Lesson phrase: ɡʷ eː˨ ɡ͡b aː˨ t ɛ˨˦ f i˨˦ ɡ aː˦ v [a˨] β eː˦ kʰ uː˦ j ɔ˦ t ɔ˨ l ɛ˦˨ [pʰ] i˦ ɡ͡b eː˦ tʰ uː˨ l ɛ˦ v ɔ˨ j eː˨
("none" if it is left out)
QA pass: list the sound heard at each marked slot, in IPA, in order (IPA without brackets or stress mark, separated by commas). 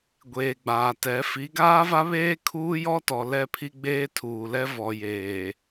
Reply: a˦, pʰ